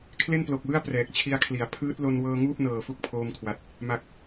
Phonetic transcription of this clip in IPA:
kʰ l e˥˩ n p l o˨˩ k̚ w ɯ˥˩ a̯ p r ɛː˨˩ k̚ t͡ɕʰ i˧ a̯ kʰ l i˩˦ a̯ pʰ ɯː˦˥ t̚ l o˧ n w ɤː˧ ŋ uː˥˩ p̚ n ɤː˨˩ f u˦˥ k̚ pʰ oː˧ m kʰ w a˨˩ t̚ | m a˨˩ k̚

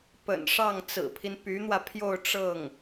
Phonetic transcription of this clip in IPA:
p ə̰˨˩ n ʂ ɑ˥˩ ŋ t͡s ɹ̩˨˩ pʰ i˦ n p y˧˥ n̪ w ä˧ pʰ j o˥˧ ʊ̯ ʈ͡ʂ ɤ˥˩ ŋ

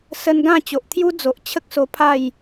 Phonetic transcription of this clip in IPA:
s ə˧ n ɡ ã˥˧ t͡ɕ o˨ ʔ t̪ʰ j u˦ d͡z o˨ ʔ t͡ɕʰ ə˦ k̚ s o˧ pʰ a˥˧ j

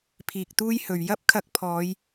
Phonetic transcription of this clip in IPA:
pʰ iː˨ k̚ t̪ uː˥ j h ɵ˨ ɥ j ɐ˥ p̚ kʰ ɐ˧ k̚ pʰ ɔː˨˧ j

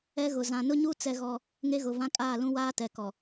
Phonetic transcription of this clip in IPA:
ɛ˦ ɣ ʊ˨ z ã˨ n ʊ˦ ɲ u˦ t͡s ɛ˦ ɣ ɔ˦ | ŋ e˦ ɣ ʊ˨ v ã˦ kʼ aː˦˨ l ũ˦ w aː˦ t ɛ˨ k ɔ˨

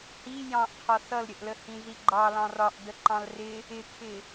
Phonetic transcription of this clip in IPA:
h i j ɑ̃ ʔ qʰ ɒ s ʌ l ɾʲ ə ʔ l ə h ĩ z i ɡ͡ǃ ɑ l ɑ̃ r ɒ ʔ d ə ǃ ɑ̃ l r ɪ | ɪ kʰ ɪ

